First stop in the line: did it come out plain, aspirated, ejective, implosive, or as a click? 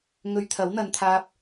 aspirated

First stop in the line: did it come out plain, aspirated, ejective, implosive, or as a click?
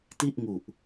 plain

